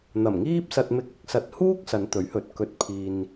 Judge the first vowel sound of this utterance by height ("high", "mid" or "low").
low